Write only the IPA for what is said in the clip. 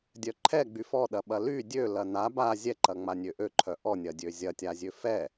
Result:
dʲ œ ǃʰ ɛ ɡ͡b y f ɔ ɗ ɐ ɓ ɐ l y dʲ ø l ɐ n a b a zʲ ɛ ǃ ɐ ŋ͡m a nʲ ø ʔ ø ǃʰ œ ʔ ɔ nʲ ɐ dʲ ø zʲ ɐ tʲ a zʲ ø f ɛ

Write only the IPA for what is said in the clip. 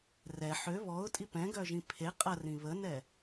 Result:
r ɛ ħ ø β ɔ ʊ̯ tʼ i p ɛ̃ ɡ œ ʒ ĩ pʰ e qʼ ɐ r ĩ β ə n ɛ

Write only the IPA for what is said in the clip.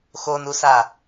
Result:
x o n u s a

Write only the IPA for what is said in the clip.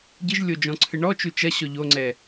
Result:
ɟ ɨ ʒ lʲ o d͡ʒ ɔ̃ ǀʰ ɨ ɳ ɔ t͡ʃ u t͡ʃ ɐ ɕ ɔ ʎ o ŋ͡ǀ ɛ

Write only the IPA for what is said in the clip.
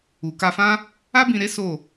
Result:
u˨ k a˧ f ã˦ | a˦ b ĩ˧ ɾ e˦ s o˦˨

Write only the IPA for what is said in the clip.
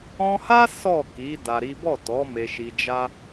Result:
ɔ̃˧ h a˦ s ɔ˦˨ k i˨˦ d a˧ ɾ i˦ b ɔ˦˨ t ɔ˨˦ m e˧ ʃ i˧ d͡ʒ a˦

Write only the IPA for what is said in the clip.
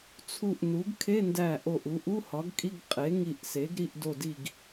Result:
t͡sʰ u˧˩ ʔ n u˩˥ ɡ kʰ e˧˥˧ n d æ˧˩ ʔ o˧˩ ʔ u˩˥ ʔ u˧˥˧ h ɒ˩˥ ɡ kʼ i˧˥˧ ɡ qʼ e˩˥ ŋ i˧˩ ʔ s e˩˥ ɡ ɾ i˧˥˧ ʔ d o˥˨ d i˥˨ ɡ

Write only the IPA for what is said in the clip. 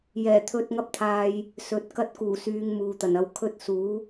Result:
j ɛː˨˩ t̪ʰ ɵ˧ t̚ ŋ ɐ˥ p̚ t̪ʰ aː˧ j | s ɵ˨ t̚ k ɐ˥ t̚ k uː˨˩ s yː˨˧ ŋ m uː˨ t̪ ɐ˨˩ n ɐ˧ w kʰ ɵ˥ t̚ s uː˨˥

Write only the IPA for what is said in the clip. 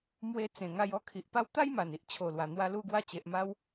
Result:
m w e˧ t͡s ẽ˨˩ ŋ a˧ j ɔ˥˧ kʰ i˨ ʔ p a˦ w t̪ a˦ j m a˨˩ n i˦ ʔ t͡ɕʰ o˨˩ l w a˨˩ n̪ w a˧ l u˧ ɡ w a˧ t͡ɕ e˨ ʔ m a˧ w

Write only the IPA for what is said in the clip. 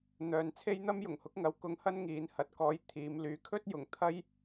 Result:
n̪ œː˨ n t͡sʰ e˥ j n̪ ɐ˥ m j ʊ˨˩ ŋ h ʊ˨˥ k̚ ŋ ɐ˨˧ w k ʊ˨˥ ŋ h ɐ˥ n ŋ iː˨˥ n h ɐ˨ t̚ k ɔː˧ j t̪ʰ iː˨˧ m l yː˨˥ kʰ ɵ˥ t̚ j ʊ˨˩ ŋ t̪ʰ ɐ˥ j

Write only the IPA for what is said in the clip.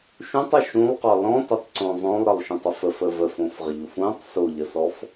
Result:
ʃ ũ tˤ ʊ ʃ ũ lˠ q ɔ l ɔ̃ t ʊ tˤ ǀ õ zˤ õ lˠ ɾ ə lˠ ʃ ũ tˤ ə f ə f ə v ə f õ f ʁ ə ʎ ʊ f ũ tˤ s o ʎ ə s ɔ f

